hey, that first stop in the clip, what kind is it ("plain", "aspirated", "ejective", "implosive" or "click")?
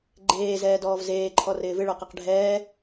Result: click